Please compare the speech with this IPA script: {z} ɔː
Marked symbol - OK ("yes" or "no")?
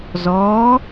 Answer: yes